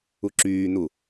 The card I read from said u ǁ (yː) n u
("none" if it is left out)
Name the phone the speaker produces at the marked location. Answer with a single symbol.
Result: yː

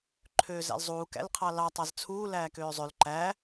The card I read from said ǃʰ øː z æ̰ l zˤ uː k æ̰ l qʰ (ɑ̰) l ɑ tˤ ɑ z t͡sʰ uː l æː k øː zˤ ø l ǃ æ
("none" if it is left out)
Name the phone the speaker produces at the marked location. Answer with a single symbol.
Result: ɑ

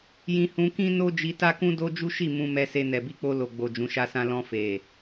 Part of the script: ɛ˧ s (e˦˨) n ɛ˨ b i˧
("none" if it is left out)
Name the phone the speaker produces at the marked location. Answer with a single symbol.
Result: e˧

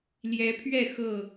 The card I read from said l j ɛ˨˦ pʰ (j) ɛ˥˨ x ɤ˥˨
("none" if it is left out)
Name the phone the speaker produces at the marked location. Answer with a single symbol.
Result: ɥ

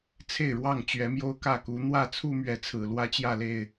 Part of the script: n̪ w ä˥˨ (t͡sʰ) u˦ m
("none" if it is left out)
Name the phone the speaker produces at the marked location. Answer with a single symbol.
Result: t͡sʰ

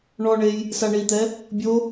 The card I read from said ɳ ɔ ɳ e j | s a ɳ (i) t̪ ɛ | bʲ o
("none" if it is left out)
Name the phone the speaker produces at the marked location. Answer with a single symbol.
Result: i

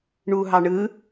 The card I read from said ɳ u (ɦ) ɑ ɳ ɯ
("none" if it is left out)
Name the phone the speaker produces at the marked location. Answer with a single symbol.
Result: ɦ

